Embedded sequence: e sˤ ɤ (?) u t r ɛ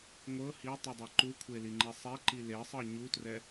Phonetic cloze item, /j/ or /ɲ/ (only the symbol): ɲ